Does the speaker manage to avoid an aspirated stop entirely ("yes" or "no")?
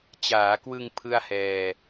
no